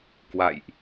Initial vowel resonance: oral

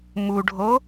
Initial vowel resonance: oral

